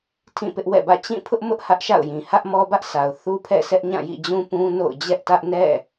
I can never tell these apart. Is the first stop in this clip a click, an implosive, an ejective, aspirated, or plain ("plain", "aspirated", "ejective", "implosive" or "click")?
aspirated